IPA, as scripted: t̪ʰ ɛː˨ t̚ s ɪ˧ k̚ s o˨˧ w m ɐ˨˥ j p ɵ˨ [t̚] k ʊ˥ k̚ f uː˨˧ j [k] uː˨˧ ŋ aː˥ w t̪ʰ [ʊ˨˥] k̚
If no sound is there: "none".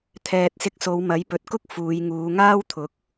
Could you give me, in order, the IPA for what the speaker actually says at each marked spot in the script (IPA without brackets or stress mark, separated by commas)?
t̚, ŋ, ʊ˨˥